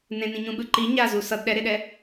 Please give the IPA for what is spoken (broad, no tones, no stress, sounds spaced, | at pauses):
n ẽ n ĩ ɲ ũ ɓ ɯ ǃ i ɲ a z u s ʌ d ɗ ɛ ɾ e ɗ ɛ